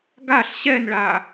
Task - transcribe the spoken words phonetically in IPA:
ɡaɬ ɕɛnɭa

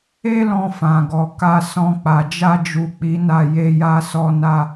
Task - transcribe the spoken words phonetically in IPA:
e˦lɔ̃˧fã˨ ɡɔ˨ ka˧sɔ̃˧ k͡pa˨d͡ʒa˧d͡ʒu˨ k͡pi˨˦na˦˨ je˧ja˧sɔ˧na˧

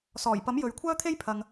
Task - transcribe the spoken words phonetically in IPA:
sɔː˨˩jpɐ˨˥m jɵ˨ɥ kʷʰœː˥t̪ʰe˥jpʰɐ˨ŋ

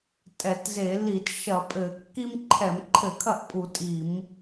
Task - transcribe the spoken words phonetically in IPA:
tʼɛ˧˩˧tze˧˩˧ li˧˩˧t ʃɐ˧˩˧ pʼɘ˧˩˧ kːi˦mǃʰɛ˧˩˧mǃʰɘ˧˩˧ kʰɐ˥˨ʔpʼu˧˩˧ tʼi˧˩˧m

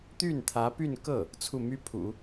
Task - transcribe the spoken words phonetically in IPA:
t̪y˥˩nt̪ʰä˧˥py˥˧nkɤ˥˩ | t͡sʰu˥˩my˥ pʰṵ˨˩˦

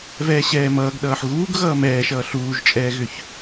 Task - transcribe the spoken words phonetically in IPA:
vɛːɕɛːmʌːɡɗʌːħ ɣuːɡ ɣʌːmɛːʃʌː ɬuːʒt͡ʃʼɛːɣʏç

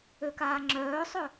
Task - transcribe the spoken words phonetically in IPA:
økaːŋ͡ǁœːsˤœ

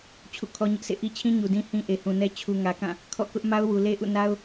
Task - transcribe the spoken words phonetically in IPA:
t͡ɕʰṵ˦˨kʰɔ˦ɲɪ˦ʔsʰḛ˦˨ ʔi˦t͡ɕʰĩ˦ ɲu˨dĩ˦ hĩ˦ʔe˨hũ˨nɛ˦ t͡ɕʰu˨ŋä˨kã˦˨ | kʰɔ̰˦˨kʊ˦ʔ ma˦ʊ̯wu˨le˦ ʔṵ˦˨na˦ʊ̯

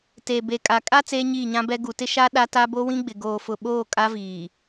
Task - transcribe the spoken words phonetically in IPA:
te˨ be˨kʼa˨kʼa˦ t͡seː˦ɲiː˦˨ɲã˦bɛ˦ ɡu˨tɪ˦ʃa˦ ɗa˦ta˦ bo˦wĩ˦ ɡ͡bɪ˨ɡoː˨fʊ˨ɓoː˦˨ kʼa˦viː˨

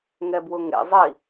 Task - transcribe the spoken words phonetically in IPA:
ŋɛbwʊŋḛ zˤi

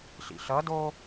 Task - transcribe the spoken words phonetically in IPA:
ɬḭɬʌdo

